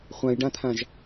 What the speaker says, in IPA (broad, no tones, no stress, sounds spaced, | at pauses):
χʷ ã j ɖ ã t̪ʰ ã ʒ